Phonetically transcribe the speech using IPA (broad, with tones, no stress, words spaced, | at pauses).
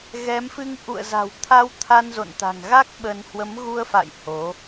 ɣɛ˨˦mfɨ˧ŋ ʔṵ˧˨ə̯za̤˨˩wt̪ʰa˧w t̪ʰa˧nzo̰˧˨nt̪a̤˨˩ŋɣa˦˥k̚ ɓə˧n hwə˨˦mɣu˧ə̯fa̰˧˨j ho˨˦